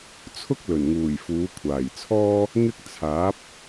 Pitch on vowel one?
high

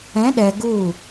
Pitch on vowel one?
rising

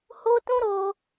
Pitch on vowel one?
high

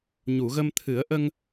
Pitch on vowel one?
low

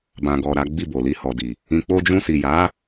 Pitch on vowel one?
low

